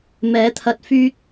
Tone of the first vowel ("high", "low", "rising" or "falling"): rising